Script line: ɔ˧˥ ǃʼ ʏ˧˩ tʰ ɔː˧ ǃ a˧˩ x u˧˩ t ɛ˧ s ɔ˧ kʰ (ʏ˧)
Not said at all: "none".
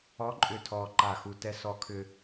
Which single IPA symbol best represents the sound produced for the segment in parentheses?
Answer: ʏ˧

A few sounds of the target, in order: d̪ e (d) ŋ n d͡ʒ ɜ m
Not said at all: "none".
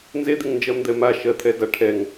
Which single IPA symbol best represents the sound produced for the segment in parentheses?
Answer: none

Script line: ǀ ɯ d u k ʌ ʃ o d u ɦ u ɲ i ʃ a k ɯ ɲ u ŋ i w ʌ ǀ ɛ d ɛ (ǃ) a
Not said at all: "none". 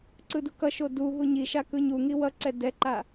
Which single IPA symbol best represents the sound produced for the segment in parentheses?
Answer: ǃ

